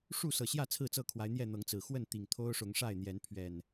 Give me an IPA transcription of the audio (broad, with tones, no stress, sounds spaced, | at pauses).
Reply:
ʂ u˥˨ s ɤ˨˩ ɕ j ä˥˨ t͡sʰ ɹ̩˥˨ t͡s ɤ˥˨ kʰ w a˨˦ ɪ̯ n̪ j ɛ˥˨ n̪ ɤ˨˦ ŋ t͡s ɹ̩˨˩ x w ə˥˨ n t̪ i˨˩ ŋ t̪ʰ o˦ ʊ̯ ʂ ʊ˨˦ ŋ ʂ a˥˨ ɪ̯ n̪ j ɛ˨˦ n pʰ ɥ ɛ˨˩ n